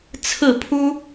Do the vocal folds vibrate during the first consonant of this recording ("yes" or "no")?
no